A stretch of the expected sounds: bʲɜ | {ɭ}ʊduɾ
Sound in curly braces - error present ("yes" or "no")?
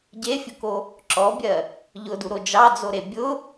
yes